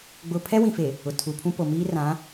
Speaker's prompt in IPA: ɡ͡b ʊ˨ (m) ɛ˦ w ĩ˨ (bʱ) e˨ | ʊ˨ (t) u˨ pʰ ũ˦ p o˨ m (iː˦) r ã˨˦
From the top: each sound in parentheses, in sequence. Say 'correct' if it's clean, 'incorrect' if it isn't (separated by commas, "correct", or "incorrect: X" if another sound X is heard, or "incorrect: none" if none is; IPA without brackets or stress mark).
incorrect: pʰ, incorrect: f, incorrect: tʰ, correct